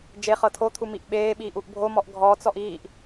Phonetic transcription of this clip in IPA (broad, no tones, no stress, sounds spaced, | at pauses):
d͡ʒ e χ ɤ tʰ o t̪ʰ u m i ʔ ɓ eː ɓ iː ʔ u ʔ bʱ o m ɔ ʔ ɡʱ ɔ t͡s ɔ ʔ iː ʔ